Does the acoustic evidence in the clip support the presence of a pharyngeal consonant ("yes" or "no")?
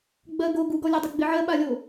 yes